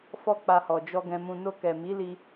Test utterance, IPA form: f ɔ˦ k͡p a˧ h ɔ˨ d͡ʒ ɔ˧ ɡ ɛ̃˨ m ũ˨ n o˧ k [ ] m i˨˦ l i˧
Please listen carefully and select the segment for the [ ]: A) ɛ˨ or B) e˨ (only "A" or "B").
A